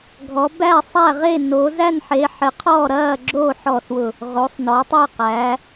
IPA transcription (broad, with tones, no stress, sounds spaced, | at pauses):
ɡʱ ɔ˨˦ b æ˥˨ sˤ æ˥˨ ʁ e˥˨ n o˨˦ z æ˥˨ n ħ e˨˦ ħ ɪ˨˦ qʰ ɔː˥˨ ɾ ɐː˥˨ ɡ͡ǁ oː˥˨ ħ ɔː˥˨ s w ʊ˥˨ | ʁ o˨˦ sˤ n ɔ˨˦ tˤ æ˥˨ q æ˨˦